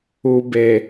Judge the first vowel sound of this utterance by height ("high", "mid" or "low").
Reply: high